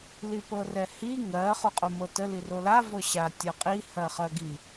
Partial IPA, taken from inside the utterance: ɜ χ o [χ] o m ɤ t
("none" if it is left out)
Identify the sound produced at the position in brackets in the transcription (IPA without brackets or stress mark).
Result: qʼ